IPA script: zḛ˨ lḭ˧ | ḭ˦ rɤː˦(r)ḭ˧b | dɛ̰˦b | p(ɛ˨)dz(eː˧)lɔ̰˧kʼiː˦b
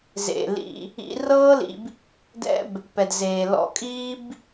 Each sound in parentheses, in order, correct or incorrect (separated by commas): incorrect, correct, incorrect